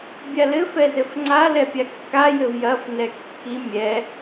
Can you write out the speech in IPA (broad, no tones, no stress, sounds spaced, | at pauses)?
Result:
bʲ a l ɘ f ɛ z ɘ f ŋ͡ǀ a l ɛ pʲ a kː a j ɘ v j ɐ f n ɛ kː i mʲ ɛ